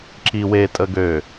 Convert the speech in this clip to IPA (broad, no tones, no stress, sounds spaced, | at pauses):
ǁ i w e tʼ ə ɡ ø